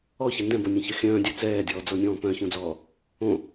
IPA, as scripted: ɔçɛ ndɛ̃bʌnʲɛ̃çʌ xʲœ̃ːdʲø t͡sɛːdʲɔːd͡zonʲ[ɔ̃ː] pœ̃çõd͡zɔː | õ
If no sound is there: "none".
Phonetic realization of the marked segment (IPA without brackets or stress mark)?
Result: ɔ̃ː